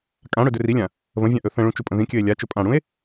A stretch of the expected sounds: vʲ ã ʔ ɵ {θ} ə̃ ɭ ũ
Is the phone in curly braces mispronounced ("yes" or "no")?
no